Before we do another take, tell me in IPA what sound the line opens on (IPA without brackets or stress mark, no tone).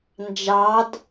n